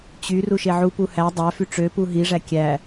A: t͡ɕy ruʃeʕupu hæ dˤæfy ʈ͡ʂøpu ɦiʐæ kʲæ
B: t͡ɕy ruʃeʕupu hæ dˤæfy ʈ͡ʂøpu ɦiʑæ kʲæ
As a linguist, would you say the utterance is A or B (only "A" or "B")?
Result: A